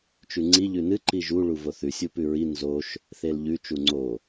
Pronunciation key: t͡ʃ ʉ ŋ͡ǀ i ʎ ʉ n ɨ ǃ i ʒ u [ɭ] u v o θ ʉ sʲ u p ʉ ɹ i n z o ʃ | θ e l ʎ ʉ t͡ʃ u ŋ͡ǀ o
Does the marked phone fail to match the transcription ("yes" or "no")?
no